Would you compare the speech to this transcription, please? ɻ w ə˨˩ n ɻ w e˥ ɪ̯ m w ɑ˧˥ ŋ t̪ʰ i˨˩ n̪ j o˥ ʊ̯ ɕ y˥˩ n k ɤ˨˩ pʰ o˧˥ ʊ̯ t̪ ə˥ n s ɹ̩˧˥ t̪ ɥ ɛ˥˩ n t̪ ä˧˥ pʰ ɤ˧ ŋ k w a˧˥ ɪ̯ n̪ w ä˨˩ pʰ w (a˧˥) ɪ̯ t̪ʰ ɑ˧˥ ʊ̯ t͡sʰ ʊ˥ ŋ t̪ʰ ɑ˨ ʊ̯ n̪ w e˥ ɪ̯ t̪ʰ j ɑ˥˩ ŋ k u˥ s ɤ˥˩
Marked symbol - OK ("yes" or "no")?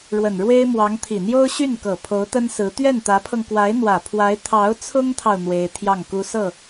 yes